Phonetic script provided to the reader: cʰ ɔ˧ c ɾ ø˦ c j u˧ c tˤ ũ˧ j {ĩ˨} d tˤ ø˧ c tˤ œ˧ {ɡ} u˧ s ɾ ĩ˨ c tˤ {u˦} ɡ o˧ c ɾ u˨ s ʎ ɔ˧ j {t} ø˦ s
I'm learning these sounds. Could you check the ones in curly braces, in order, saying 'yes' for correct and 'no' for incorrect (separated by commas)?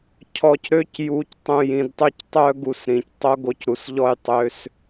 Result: yes, yes, no, no